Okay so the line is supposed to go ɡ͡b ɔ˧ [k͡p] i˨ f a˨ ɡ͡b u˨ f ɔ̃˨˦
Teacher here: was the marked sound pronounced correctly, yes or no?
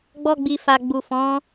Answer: no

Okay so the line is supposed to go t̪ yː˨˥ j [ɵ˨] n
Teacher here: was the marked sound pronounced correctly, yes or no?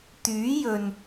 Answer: yes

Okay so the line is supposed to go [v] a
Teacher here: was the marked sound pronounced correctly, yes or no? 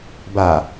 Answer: no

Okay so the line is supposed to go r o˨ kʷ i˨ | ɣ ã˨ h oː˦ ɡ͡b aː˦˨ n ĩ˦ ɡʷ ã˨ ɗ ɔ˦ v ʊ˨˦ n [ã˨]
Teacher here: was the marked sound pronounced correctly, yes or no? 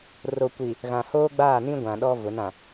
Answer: yes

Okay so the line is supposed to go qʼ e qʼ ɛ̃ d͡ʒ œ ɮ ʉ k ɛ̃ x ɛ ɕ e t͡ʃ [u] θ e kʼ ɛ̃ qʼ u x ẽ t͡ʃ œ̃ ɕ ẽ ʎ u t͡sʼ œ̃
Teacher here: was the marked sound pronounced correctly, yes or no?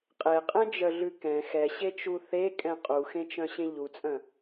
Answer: yes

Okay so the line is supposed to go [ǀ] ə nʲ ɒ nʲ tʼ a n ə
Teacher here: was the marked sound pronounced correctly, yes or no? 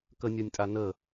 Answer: no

